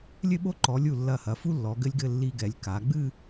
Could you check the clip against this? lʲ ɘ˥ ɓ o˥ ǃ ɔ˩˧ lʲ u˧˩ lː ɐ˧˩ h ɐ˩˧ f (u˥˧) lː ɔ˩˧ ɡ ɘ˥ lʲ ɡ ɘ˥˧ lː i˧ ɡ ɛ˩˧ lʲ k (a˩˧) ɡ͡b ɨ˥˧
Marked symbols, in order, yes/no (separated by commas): no, yes